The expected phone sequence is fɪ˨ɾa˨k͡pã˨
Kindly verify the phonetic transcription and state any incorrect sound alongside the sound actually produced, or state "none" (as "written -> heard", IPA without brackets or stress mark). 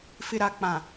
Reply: none